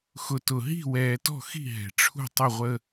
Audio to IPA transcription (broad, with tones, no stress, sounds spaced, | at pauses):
x ʊ˨ t ʊ˨ ɦ i̤˦˨ w ɛː˨ t ɔ̤˦˨ x i̤˦˨ ɦ ɛ̤˨ ʈ͡ʂʰ ṳ˦˨ tˤ ʊ˦˨ ʁʷ ə˦